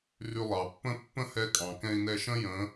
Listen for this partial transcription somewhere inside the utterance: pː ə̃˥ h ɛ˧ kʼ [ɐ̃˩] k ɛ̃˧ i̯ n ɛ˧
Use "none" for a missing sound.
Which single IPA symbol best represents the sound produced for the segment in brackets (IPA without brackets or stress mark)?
ɑ̃˩